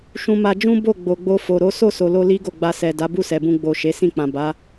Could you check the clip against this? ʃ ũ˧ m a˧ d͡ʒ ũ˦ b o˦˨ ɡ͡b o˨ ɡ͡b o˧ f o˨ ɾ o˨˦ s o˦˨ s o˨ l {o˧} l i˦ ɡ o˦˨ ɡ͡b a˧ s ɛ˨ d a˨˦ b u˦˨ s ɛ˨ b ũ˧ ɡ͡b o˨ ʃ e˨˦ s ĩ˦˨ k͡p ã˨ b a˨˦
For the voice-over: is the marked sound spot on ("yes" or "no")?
yes